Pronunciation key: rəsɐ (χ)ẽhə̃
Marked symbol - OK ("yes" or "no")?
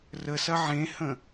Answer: no